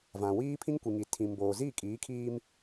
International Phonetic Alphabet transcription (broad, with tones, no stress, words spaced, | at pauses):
vã˨wiː˦ pʰĩ˦ŋkʷi˨ŋi˨ tʰĩ˨mboː˨ ziː˦˨kʼiː˨˦kʰiː˦m